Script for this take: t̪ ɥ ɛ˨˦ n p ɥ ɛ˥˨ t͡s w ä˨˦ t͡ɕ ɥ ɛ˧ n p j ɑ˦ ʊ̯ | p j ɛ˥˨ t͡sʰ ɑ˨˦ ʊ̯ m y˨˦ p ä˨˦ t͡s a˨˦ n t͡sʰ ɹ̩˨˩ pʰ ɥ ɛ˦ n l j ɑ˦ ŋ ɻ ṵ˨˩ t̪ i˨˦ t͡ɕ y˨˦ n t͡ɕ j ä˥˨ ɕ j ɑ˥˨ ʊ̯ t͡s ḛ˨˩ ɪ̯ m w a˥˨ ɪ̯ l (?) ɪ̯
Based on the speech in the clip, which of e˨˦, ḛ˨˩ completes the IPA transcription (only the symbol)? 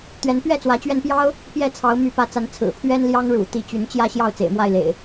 ḛ˨˩